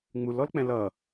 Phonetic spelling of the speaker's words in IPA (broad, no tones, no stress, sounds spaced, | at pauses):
ŋ͡m u l ɔ l k͡p ɛ̃ l ʌ